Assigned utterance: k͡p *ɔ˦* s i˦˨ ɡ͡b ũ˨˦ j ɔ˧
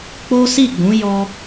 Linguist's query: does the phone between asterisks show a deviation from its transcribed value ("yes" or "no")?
yes